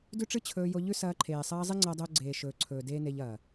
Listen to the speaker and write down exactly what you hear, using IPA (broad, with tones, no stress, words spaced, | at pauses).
dʉ˦ʈ͡ʂɨ˦ t͡ɕʰɵː˧jo˧ ʎʉ˦sɐː˧ ǃʰeː˨sˤɐː˧ zˤe˦ŋ͡ǀɐː˧dˤɵː˧ɡ͡ǀeː˨ ʃɵː˨ǀʰɵː˨ deː˦ne˧ʎ ɐː˨